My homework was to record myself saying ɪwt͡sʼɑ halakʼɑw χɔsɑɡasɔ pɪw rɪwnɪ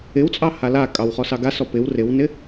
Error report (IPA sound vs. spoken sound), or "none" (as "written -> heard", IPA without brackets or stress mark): none